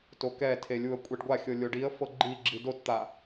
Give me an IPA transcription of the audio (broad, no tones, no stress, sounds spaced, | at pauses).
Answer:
t o k ɛ tʰ e lʲ u ə̯ kʷʼ ɛ ɖ ɡʷ a xʲ ɤ lʲ o ɖ i ə̯ f ɤ ɡ͡ǃ i ɡ͡ǁ i d o t t̪ a